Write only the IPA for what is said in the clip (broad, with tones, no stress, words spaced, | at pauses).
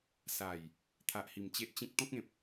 sa˨˩j | t̪ʰa˨ʔhi˨˩m t͡ɕe˦ʔt͡ɕĩ˦k̚ t̪ɔ̃˦k̚ẽ˨p̚